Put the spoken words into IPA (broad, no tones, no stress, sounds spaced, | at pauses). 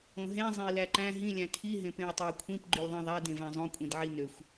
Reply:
õ ɦ ẽ zˤ ẽ i̯ l æ ǃ æ̃ ɦ ĩ lʲ æ̃ tʰ i ɦ ẽ p ẽ u̯ tˤ e i̯ kʷʰ ĩ p ɡ͡ǃ y lʲ ðˤ ĩ ðˤ æ d ẽ v æ̃ zˤ õ kʷʼ ĩ d ʕ i n ø xʷ